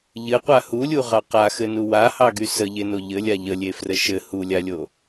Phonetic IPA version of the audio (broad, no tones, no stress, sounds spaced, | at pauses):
ʎ ɘ qʷ a h u lʲ u ʁ ɑ q a x ɘ n u w a h ɑ ɡ y s ə ʎ e n o ʎ ɘ lʲ a ʎ ə lʲ e f r ə ʃ ɘ h u lʲ a lʲ o